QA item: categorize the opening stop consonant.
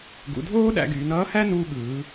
plain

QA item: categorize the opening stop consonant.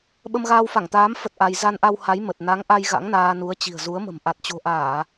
implosive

